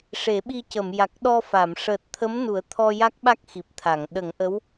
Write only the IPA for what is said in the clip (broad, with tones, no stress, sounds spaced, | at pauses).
ʂ e˨˩˦ ɓ i˧ c ə˨˩˨ m j a˨˩ k̚ ɗ ɔ˧ f a˨˩˨ m ʂ əː˨˩ t̚ t̪ʰ ə˧˥ m n u˨˩˦ ə̯ t̪ʰ ɔ˧ j a˦˥ k̚ ɓ a˦˥ k̚ x i˨˩ p̚ t̪ʰ a˨˩˨ ŋ ɗ ə˨˩˦ ŋ ʔ ə˧˥ w